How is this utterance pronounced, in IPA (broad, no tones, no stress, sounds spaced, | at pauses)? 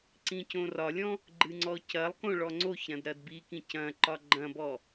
ǀ ĩ c õ r ɒ lʲ ɔ̃ | ɡ͡ǃ ɨ ŋ͡ǀ ɔ c ɐ lˠ k õ ɭ ɔ ŋ͡ǀ o ç ɾ ɐ̃ d ɾ ɐ d b i k ĩ c ɐ̃ ǃ ɒ ɡ͡ǃ ɐ̃ b ɔ